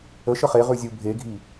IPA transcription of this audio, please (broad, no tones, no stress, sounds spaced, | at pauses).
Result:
ə ʃ ə χ e ʁ ʉ zʲ u bʱ e ɡʱ i